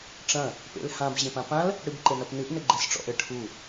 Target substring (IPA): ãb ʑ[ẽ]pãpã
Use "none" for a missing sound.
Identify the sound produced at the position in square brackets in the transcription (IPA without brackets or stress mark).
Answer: ẽ